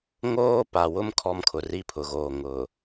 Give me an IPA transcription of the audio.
ŋoː˦pa˨wʊ˦m kʰɔ˦mkʰʊ˨ ri˦pʰʊ˨ɣoː˨ ŋʊ˨

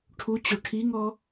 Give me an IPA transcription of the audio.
ʈʰut͡ɕo ʈʰiŋɔ

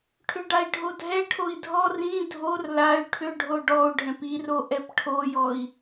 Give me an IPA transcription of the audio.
ʈʰʏɖai̯ɖʱodʱɛ ʈʰoi̯dʱɔ rĩ dʱor lay̯ ʈʰʏɖʱo ɖɔu̯ɖʱɛ̃p iro ʔɛpʈʰojɔi̯

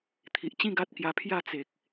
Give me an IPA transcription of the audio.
t̪ʰi˨ʔt͡ɕĩ˥˧ɡa˦t̚kja˧ pʰja˥˧ t͡se˨k̚

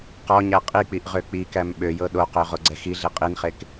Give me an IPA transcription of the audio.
qɔɲæ qʼik͡piʔʁø k͡pikæm ɓøjɤ ɗoqø ʁoɡ͡ǀɛxiɮe qʼinχek

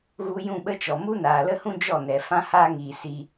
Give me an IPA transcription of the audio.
ɣu˧ jũ˦˨ɓə˦t͡ʃɔ˨ mu˦naː˨lə˦hũ˦ d͡ʒɔ˦˨nɛ˨ fã˦haː˦ŋiː˨ si˧

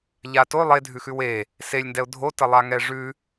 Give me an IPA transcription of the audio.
ʎato lˠedʱʉxʉw e | selʲndɛʊ̯ dʱotəlˠa ŋɛʐʉ

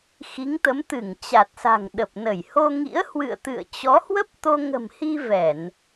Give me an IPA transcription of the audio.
xi˨˦ŋt̪ə˨˦m t̪ɨ˧˩ŋt͡ɕa˨˩t̚sa̤˨˩ŋ ɗə˨˩p̚ nə˧˩jho˧ŋḭ˧˥ə̯ hwɨ̰˧˨ə̯t̪ɨ̰˧˨ə̯t͡ɕɔ˨˦ hwə˦˥p̚t̪o˧ŋə̤˨˩mhi˧ vɛ˧˩˨n

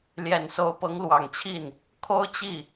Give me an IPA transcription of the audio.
ljɛ˨˩nso˧˥ʊ̯ pɤ˧˥ŋlwɑ˨˩ŋt͡ɕʰi˥˩n | kʰo˥ʊ̯ t͡ɕi˥˩

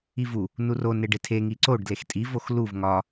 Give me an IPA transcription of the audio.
ivu | nuro neɖetʰe ŋiǀoɖ dlextʼi voxluv ŋɒ

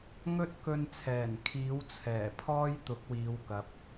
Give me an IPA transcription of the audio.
ŋɵ˥t̚kɵ˧nt͡sʰɛː˨˩n kʰiː˨˥wt͡sʰɛː˨˩pʰɔː˥j t̪ʊ˨˥k̚wiː˨˧wkɐ˨p̚

